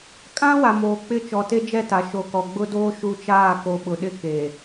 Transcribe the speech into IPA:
kʼ ã˦ w a˨ m oː˨ k͡p ɪ˦ t͡ʃ ɔ˨ t e˦ d͡ʒ ɛ˦˨ t a˨ ʃ o˨ k ɔ˨ ɡ͡b ʊ˦ d oː˦ ʃ u˦ t͡ʃ aː˦˨ k o˨ ɓ ʊ˨ ɗ ɪ˦ k e˨

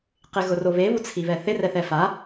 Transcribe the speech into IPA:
q ɪ ɣ ʊ r o β e β u t͡sʰ i β ɛ θ ɪ r ɛ θ ɛ f a

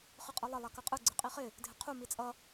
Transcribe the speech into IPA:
χ ɯ qʼ ɯ lˠ ʌ lˠ a k ʌ qʼ ɯ ɡ͡ǀ ɯ qʼ i χ ɪ | dʱ ɪ qʰ u m i t͡sʼ ʌ

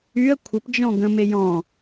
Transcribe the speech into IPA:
y ə̯ kʷʰ ə p d͡ʒ ɔ̃ ɡ ə̃ m e j ɔ̃

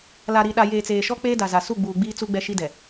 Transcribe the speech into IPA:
l a˨ ɾ i˨ ɗ a˨ j eː˨ t͡s eː˨ ʃ ɔ˦ k͡p eː˦ d a˨ z a˨ s u˦˨ ɡ͡b uː˨ ɡ͡b iː˦ t͡s u˦ ɡ͡b ɛ˦ ʃ i˦ d ɛ˨

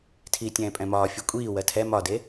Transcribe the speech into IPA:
tʰ iː tʲ ɛ̃ː pʼ ɛ̃ m ɒː fʲ ɯ kʷʼ iː w ɜ tʰ ɛ m ɒ d e

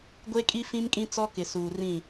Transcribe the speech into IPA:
ɡʷ e˦ kʼ i˦ f ĩ˦ m kʼ ĩ˦ t͡s ɔ˦ k ɪ˨ s uː˨ r ĩ˦˨

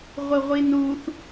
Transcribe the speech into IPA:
ʁʷ ɨ ʁʷ i n u θ

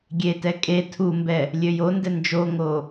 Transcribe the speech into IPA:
ɡʲ e t ɛ kʼ e tʰ u m b ɛ | lʲ ø j o n d ɛ n d͡ʒ o ŋ o

